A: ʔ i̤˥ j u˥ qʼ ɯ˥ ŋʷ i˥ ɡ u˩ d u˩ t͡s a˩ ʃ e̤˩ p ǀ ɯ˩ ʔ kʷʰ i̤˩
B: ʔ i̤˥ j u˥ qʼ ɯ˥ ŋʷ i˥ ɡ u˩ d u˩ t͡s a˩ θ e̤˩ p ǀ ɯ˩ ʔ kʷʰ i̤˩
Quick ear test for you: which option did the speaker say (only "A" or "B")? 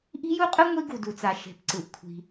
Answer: A